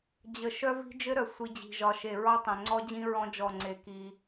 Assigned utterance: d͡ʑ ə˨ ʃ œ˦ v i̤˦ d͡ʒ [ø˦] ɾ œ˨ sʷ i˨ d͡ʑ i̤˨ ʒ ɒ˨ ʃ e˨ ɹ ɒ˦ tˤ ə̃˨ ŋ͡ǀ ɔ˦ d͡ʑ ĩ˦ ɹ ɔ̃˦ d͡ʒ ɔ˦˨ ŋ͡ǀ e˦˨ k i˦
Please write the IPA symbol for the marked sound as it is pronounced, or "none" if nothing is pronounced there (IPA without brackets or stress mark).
ɘ˦